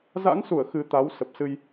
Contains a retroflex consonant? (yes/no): no